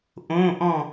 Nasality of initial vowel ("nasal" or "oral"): nasal